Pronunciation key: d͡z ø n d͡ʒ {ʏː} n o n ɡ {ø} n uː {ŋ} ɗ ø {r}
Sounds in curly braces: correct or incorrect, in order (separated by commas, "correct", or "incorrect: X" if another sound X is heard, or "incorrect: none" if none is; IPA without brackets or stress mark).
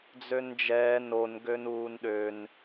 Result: incorrect: ɛː, correct, incorrect: n, incorrect: n